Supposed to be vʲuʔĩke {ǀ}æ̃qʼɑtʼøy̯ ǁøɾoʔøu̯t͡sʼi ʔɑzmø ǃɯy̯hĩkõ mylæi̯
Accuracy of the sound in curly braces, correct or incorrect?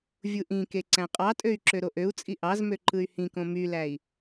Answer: correct